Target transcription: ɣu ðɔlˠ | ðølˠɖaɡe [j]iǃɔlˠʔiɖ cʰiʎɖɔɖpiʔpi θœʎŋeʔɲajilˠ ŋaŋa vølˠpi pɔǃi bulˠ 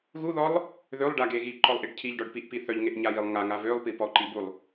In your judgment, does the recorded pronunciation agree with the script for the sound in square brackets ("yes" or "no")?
no